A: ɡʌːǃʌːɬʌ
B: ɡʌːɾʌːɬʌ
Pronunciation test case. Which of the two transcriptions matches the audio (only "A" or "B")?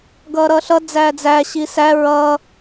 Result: B